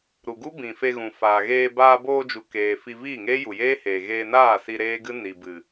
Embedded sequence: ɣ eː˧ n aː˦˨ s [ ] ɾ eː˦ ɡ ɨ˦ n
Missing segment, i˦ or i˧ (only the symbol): i˧